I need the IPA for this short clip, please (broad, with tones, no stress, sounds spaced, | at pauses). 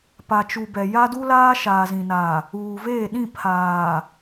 p a˨ t͡ʃ u˨ b ɛ˨ j a˦ d u˦ l aː˦ ʃ aː˨ z ĩ˨ n a˨ | uː˨ v eː˦˨ ɗ ĩ˦˨ pʰ aː˨